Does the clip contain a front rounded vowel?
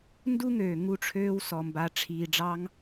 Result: yes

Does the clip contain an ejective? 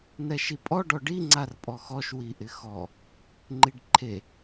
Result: yes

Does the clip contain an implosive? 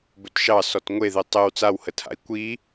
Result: no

